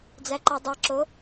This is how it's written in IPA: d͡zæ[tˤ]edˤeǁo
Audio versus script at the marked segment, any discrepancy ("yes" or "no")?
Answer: yes